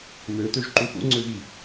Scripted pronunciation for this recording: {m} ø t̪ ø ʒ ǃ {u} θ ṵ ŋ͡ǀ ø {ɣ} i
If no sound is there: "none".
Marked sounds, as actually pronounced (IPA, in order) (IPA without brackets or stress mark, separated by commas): m, u, ɣ